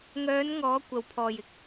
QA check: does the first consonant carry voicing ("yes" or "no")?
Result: yes